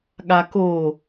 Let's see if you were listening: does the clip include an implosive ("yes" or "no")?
yes